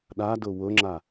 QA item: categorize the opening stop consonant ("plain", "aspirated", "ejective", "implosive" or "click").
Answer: implosive